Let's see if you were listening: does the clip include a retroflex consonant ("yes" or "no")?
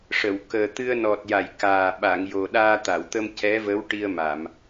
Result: yes